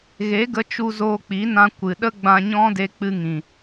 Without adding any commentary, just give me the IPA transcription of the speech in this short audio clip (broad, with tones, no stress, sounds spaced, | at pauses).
ɣ e˨˦ ɡ ə˧ t͡ʃ u˧ z oː˧ k͡p i˨˦ n ã˧ kʷ ɨ˨ ɗ ə˦ ɡ͡b ã˧ ɲ ɔ̃˦ d e˧ k͡p ɨ˧ ŋ ĩ˨